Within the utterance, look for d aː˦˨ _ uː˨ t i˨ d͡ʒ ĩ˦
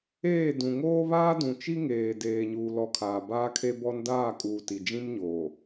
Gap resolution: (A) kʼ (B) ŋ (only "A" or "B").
A